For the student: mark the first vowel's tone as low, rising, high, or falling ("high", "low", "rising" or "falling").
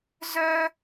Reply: high